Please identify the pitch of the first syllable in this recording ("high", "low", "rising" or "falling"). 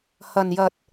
low